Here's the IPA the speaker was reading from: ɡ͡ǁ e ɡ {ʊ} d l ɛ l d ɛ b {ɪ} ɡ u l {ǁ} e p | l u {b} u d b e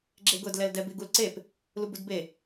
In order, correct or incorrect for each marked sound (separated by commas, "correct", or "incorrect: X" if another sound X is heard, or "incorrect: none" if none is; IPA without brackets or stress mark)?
correct, correct, incorrect: ǀ, correct